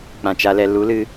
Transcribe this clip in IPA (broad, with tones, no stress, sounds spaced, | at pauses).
k͡p ã˨ t͡ʃ a˧ l ɛ˧ l u˨˦ l ɨ˧